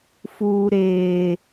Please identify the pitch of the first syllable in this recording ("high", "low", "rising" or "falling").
low